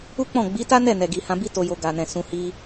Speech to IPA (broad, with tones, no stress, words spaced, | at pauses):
u˦k͡pɔ̃˦˨ ɡ͡bi˨˦ta˦nɛ˦˨ nɛ˨ɡi˨hã˧bi˦ to˧jo˧ ɡa˨nɛ̃˨ sũ˨hi˧